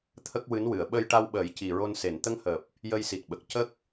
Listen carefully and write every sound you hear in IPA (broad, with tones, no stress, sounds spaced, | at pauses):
t̪ʰ ə˦˥ k̚ w ɨ˧˥ n w ɨ˨˩˨ ə̯ ɓ ə˧ j ʈ a˧ w ɓ əː˨˩˦ j c i˨˩ ɹ o˧ n s e˨˩˨ n t̪ ə˧ ŋ h əː˨˩ p̚ | j ə˧ j s i˨˩ t̚ ɓ ə˨˩ k̚ c ə˦˥ k̚